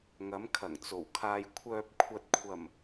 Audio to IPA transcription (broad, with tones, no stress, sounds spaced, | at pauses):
ŋ ɐ˨˧ m kʰ ɐ˨˩ ŋ t͡s o˨˩ w kʰ aː˨ j kʷʰ œː˨ p̚ kʷʰ ɐ˨ t̚ kʷʰ ɐ˨˩ m